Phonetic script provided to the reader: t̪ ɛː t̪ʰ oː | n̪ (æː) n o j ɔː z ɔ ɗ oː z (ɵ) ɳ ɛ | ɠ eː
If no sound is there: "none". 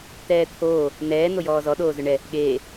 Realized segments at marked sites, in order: ɛː, ɵ

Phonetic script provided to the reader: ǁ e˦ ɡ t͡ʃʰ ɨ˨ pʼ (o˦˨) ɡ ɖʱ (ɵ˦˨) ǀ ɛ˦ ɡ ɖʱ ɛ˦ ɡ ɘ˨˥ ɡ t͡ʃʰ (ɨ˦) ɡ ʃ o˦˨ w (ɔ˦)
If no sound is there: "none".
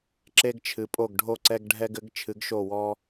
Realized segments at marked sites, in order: o˦˨, o˦˨, ɨ˨˥, ɔ˦

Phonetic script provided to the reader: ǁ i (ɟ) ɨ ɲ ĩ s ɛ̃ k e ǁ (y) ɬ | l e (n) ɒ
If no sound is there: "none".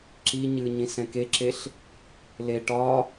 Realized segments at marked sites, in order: ɲ, e, ʈ

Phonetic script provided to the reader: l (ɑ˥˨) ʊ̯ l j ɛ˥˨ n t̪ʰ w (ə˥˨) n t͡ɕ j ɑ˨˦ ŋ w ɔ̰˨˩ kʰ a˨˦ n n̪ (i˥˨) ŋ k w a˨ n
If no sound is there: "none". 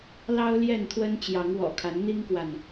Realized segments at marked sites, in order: ɑ˦, ə˦, i˦

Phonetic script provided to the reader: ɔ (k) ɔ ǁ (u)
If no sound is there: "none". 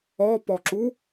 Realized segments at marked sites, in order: p, u

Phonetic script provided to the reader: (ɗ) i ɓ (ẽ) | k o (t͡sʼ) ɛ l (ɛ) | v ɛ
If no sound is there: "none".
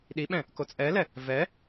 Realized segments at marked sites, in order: ɗ, ɛ̃, t͡sʼ, ɛ

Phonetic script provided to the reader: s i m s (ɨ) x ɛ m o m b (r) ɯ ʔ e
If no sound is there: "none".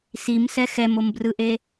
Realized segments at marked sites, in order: ɛ, r

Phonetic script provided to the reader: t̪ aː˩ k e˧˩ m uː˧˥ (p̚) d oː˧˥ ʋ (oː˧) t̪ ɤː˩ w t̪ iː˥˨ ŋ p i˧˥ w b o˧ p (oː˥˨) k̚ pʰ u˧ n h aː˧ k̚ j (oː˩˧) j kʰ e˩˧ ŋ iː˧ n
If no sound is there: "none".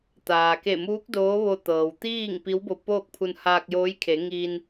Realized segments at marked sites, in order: k̚, o˧, oː˥˨, oː˧˥

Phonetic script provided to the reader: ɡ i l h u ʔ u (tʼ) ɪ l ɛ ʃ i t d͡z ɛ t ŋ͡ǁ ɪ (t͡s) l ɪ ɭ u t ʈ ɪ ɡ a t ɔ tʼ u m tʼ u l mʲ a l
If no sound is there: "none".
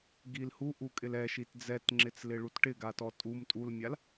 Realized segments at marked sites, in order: kʼ, t͡s

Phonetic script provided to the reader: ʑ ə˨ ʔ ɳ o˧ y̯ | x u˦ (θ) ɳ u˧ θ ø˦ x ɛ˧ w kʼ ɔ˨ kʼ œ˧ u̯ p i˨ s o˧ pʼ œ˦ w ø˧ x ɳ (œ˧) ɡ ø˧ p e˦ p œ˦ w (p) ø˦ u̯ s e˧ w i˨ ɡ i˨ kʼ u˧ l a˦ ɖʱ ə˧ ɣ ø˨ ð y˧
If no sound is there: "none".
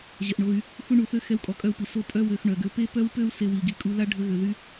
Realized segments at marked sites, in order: none, œ˨, p

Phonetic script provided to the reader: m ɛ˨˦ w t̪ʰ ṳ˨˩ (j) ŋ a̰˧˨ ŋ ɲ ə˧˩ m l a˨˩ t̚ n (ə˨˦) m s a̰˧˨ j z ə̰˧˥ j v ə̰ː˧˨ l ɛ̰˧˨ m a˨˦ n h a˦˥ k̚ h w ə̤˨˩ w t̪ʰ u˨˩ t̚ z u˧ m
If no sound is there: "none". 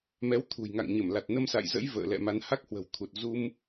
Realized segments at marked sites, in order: j, ə˧

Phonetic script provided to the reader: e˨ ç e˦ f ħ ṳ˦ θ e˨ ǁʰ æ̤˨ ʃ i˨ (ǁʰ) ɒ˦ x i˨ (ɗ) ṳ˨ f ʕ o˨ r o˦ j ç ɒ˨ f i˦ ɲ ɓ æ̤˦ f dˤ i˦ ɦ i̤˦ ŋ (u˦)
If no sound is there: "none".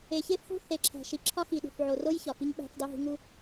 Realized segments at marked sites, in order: ǁʰ, ɗ, u˦

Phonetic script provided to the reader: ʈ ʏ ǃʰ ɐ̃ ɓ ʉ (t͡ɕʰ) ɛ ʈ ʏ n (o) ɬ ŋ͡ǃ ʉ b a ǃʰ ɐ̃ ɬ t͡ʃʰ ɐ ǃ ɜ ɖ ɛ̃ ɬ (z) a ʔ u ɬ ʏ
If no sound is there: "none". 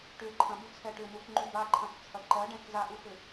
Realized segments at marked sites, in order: t͡sʰ, u, z

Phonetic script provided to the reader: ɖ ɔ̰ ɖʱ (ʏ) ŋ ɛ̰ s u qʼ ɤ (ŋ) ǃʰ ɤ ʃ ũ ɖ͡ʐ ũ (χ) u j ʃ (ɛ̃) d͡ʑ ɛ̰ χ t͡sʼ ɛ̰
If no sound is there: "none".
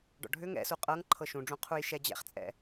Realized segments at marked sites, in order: ʏ, ŋ, qʰ, ɛ

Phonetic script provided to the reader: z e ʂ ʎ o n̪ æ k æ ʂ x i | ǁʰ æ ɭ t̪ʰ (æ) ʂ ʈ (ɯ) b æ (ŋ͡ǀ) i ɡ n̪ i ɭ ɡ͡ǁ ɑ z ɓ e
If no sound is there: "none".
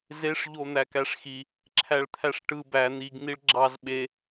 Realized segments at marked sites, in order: æ, ɯ, n̪

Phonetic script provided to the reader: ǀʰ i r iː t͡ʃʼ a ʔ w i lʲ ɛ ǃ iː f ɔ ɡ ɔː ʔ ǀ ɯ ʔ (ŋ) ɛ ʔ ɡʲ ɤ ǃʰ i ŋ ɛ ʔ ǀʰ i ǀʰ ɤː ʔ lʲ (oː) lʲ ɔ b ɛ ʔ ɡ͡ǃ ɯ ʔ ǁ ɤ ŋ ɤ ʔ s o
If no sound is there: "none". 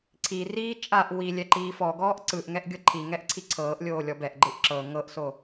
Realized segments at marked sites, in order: ŋ, oː

